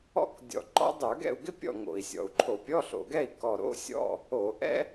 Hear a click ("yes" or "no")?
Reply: yes